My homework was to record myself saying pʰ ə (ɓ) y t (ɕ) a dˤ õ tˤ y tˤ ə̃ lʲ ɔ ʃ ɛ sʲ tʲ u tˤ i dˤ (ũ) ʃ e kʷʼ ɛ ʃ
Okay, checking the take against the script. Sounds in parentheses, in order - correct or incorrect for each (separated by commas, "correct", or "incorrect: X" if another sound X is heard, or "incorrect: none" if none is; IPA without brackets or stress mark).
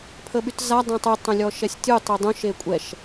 correct, incorrect: z, correct